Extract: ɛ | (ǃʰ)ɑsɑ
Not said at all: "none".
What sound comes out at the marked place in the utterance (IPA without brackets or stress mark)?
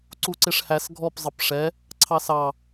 ǀʰ